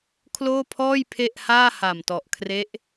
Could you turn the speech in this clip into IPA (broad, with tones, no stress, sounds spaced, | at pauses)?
kʰ l oː˥˩ pʰ ɔː˥˩ j pʰ e˥˩ ʔ h aː˥˩ h a˨˩ m t ɔ˨˩ ʔ kʰ r e˦˥ ʔ